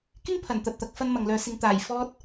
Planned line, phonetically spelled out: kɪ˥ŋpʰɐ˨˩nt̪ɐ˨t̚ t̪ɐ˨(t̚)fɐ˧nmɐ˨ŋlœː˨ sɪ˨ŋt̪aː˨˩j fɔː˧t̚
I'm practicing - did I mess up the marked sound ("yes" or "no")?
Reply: yes